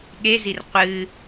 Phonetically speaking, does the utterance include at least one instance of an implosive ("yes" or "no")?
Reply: yes